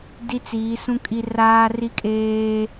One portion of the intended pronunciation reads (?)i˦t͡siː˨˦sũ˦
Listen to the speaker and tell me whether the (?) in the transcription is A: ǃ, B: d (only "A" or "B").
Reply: B